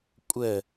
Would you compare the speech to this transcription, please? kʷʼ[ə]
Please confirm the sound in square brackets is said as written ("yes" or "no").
yes